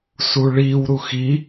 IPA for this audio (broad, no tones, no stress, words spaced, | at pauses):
suɭiw ɾuxi